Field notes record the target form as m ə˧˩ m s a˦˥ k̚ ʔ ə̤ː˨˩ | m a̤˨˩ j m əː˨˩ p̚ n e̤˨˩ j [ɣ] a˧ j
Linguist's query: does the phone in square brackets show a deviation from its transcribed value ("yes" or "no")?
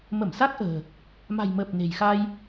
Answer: yes